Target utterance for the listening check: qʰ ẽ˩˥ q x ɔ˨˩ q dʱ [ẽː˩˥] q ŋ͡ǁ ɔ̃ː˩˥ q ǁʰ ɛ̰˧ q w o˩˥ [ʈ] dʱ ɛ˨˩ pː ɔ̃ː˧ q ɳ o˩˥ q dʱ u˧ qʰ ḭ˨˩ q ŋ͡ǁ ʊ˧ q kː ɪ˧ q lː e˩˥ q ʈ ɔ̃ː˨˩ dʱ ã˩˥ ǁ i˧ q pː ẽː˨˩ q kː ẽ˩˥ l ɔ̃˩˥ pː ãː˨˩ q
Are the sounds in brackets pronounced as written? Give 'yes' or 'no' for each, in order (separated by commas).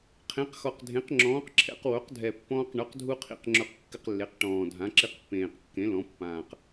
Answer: no, no